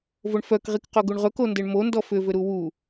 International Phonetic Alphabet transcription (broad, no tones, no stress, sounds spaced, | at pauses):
v o ɳ f œ k ʁ i k q o ɡ u ɳ ʁ ɵ k o n d e ɳ m o n d ɔ f ʏ v ʏ ɾ u w u